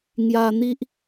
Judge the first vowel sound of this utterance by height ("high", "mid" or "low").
low